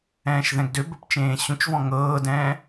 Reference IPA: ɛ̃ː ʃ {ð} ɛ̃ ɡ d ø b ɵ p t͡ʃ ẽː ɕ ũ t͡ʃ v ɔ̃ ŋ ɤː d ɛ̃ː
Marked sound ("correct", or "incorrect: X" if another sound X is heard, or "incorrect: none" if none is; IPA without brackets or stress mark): correct